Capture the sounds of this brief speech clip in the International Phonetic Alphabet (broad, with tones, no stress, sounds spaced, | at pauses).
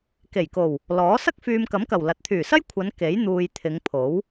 k e˨˩ j k o˨˩ w | l ɔː˨˥ s ɐ˥ k̚ f yː˨ m k ɐ˨˥ m k ɐ˨˩ w l ɐ˨˥ t̚ t̪ʰ yː˨˩ s ɐ˥ j kʷʰ ɐ˨˧ n k e˨˥ j n̪ uː˧ j t̪ʰ ɪ˨˧ ŋ pʰ o˨˥ w